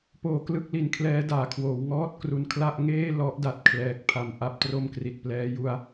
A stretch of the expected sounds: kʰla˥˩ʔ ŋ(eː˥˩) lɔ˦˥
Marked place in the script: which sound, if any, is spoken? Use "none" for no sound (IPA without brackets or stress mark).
eː˥˩